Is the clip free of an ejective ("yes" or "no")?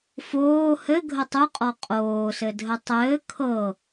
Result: no